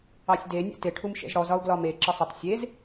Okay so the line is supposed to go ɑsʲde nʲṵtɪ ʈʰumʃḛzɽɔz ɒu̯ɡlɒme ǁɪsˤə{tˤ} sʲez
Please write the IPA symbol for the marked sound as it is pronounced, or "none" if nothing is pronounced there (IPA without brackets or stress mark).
tˤ